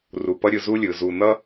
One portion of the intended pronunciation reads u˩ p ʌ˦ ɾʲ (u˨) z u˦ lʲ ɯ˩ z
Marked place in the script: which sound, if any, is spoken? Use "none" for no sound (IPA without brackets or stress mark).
ɯ˨